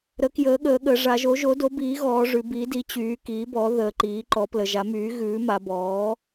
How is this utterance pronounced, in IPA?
ɾ ə˩˥ k j əː˩˥ ɠ əː˩˧ ɠ ə˩˧ ʐ a˩˧ ʒ o˩˥ ʒ o˩˥ d o˩˥ b iː˩˥ ɣ ɔː˩˧ ʐ ʉ˩˧ b i˩˥ d i˩˥ t͡ɕ yː˩˧ k iː˩˥ b ɔ˩˥ ð əː˩˧ ǃ iː˩˥ ǃ ɔ˩˥ p l ə˩˧ ʒ a˩˥ m yː˩˥ ɣ ʉː˩˥ m a˩˧ b ɔː˩˥

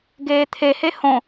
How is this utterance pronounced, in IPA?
ɡ eː t̪ʰ e h e h õ

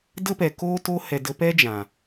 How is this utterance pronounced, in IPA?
d ə˦ p ɛ˨ k o˦ t o˧ h ɛ˨ d ə˧ p ɛ˦ d͡ʒ ã˨

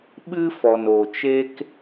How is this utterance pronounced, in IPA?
ɓ ɨ˦ f ɔ˨ n o˨ t͡ʃ e˦ k

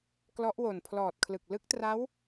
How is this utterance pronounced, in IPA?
k l ɔ˦˥ ʔ w o˨˩ n pʰ l ɔː˨˩ t̚ kʰ l ɯ˨˩ k̚ l ɯ˦˥ k̚ t r a˦˥ w

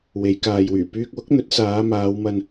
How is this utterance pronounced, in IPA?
w e˨˧ j k aː˨ j w yː˨˩ p yː˧ k̚ w ʊ˨˥ k̚ n̪ ɵ˨˥ t̚ s aː˨˧ m aː˨˧ w m ɐ˧ n

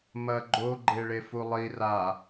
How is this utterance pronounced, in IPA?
m ɐ ɡ͡ǃ o ɡ͡ǃ e ɭ e f u lˠ i r a

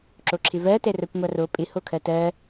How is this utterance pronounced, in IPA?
ǁ o ǁʰ ɪ v ɜ t ɛ r ɜ kʷ ŋʷ a r o pʼ ɪ h o kʰ ɜ t ɜ

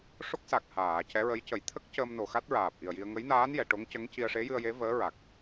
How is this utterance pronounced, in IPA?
ʂ o˦˥ k̚ s a˨˩ k̚ h aː˨˩˨ c ɛ˧˥ ɹ ə˧˥ j c ə˨˩˦ j t̪ʰ ə˦˥ k̚ c əː˧ m n o˨˩ x a˦˥ t̚ ɹ aː˨˩ p̚ ʔ i˨˩ ə̯ j i˧ ə̯ ŋ ə˧˥ j n aː˧˥ n j ɛ˨˩˨ ʈ o˧˥ ŋ c ə˧˥ ŋ c i˧ ə̯ ʂ e˧˥ j ɨ˧ ə̯ j e˧˥ v əː˧˥ ɹ a˨˩ k̚

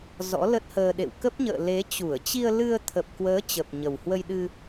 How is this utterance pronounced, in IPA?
z ɔ̰˧˥ l ə˦˥ t̚ h əː˧ ɗ ḛ˧˨ w k ə˦˥ p̚ ɲ ə̰ː˧˨ l e˨˦ t͡ɕ u˧˩ ə̯ t͡ɕ i˧ ə̯ l ɨ˧ ə̯ t̪ʰ ə˨˩ p̚ k w əː˨˦ t͡ɕ ə˨˩ p̚ ɲ ə˨˩ w h w ə˧ j ɗ ɨ˧

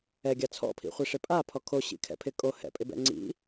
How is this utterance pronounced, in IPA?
ɛ ɡʲ a t͡sʰ ɔ̰ pʰ ḭ χʷ i ʂ ɪ pʼ a pʰ ɔ kʰ o ɕ ḭ kʰ ɛ̰ pʰ ɪ kʼ o h ɛ̰ pʼ ɪ b ɛ̰ ŋ͡ǀ ḭ

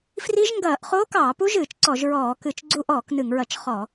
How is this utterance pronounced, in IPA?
f r i˦˥ ʒ ŋ ɡ ɐː˧˩˧ ʔ χ oː˦˥ k ɑː˧˩˧ p u˦˥ ʒ ɨː˧˩˧ t͡ʃ ǀ ɔ˧˩˧ ʒ ɹ ɔː˧˩˧ k ɨ˧˩˧ t͡ʃ ɡ͡ǀ u˦˥ ʔ ɔː˧˩˧ k n ɨ˧˩˧ ŋ ɹ ɐ˧˩˧ t͡ʃ χ ɔ˧˩˧

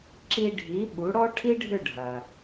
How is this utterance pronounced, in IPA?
ǁ i˧ ɖʱ i˩˥ ɓ u˩˥ ɽ ɔ˥ ʈʰ i˥ ɖʱ ʏ˥˩ ɖʱ ɐ˩

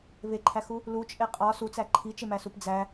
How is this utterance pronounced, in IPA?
β e ǃʰ æ x u | l u t͡ʃʼ e qʼ ɒ s u t͡s æ ǃʰ i t͡ʃ e m æ s u p d͡z æ

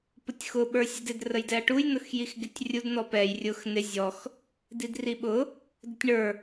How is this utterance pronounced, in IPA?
p ʊ tʲ x ʊ ɓ ə˞ sʲ ə d ɪ d r ə j d ɛ ɐ̯ ʈ u j n ʊ x j i x ɡ ɪ tʲ rʲ u d n ɔ p ɛ j rʲ ʊ x n ɪ zʲ ɔ x | d i d r i ɓ ʊ | d ʊ tʲ ɳ ə˞

